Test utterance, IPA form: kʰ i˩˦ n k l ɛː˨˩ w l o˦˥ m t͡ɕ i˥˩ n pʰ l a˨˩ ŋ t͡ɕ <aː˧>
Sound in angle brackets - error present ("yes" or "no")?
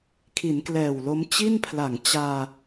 no